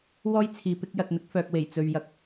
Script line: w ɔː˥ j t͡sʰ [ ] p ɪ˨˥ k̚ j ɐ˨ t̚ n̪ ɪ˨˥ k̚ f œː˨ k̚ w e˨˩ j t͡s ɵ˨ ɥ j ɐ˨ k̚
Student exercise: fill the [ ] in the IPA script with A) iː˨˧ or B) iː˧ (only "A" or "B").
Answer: A